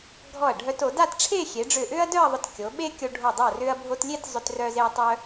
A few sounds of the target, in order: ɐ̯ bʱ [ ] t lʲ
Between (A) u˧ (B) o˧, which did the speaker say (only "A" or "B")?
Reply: B